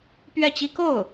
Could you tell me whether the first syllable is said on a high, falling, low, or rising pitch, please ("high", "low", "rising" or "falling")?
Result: falling